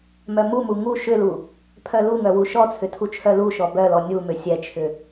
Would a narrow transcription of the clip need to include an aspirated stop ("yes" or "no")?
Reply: yes